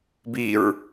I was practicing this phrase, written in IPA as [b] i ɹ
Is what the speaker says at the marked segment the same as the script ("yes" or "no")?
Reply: yes